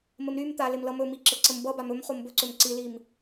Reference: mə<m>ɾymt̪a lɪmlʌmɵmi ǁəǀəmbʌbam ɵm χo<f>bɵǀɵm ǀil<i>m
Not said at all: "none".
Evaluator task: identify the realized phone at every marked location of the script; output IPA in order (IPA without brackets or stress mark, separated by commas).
m, m, i